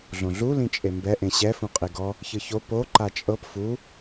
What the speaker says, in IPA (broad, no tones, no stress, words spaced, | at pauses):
ɮõɮu lĩt͡ʃʼembɛ ʔẽɕɛ fũqʼiɡɔ | çɯço po ǃat͡ʃʼɤp fu